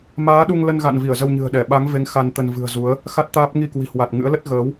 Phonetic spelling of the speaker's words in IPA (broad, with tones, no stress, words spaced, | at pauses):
maː˨˦ɗu˧ŋlə˧nɣa̰˧˨n vi˧˩ə̯zə˧wɲɨ̤˨˩ə̯ɗɛ˧˩ ɓa˨˦ŋve˨˦ŋ xa˧nt̪ə˧n vɨ̤˨˩ə̯zu˨˦ə̯ | xa˦˥t̚t̪aː˦˥p̚ ŋi˧kwi̤˨˩hwa˨˩t̚ ŋɨ̰˧˥ə̯lə˦˥t̚ ɣəː˨˦w